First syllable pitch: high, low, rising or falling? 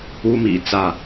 high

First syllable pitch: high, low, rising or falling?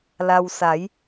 low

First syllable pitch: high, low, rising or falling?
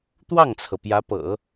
falling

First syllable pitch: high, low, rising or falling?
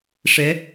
rising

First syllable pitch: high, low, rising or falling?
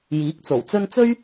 rising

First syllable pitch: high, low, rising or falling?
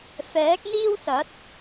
rising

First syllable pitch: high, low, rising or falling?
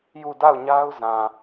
falling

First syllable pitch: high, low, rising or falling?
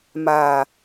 low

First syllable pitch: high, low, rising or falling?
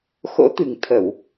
rising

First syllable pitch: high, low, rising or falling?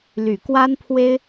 low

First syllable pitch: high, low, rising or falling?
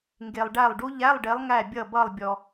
low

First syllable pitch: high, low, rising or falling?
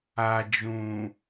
low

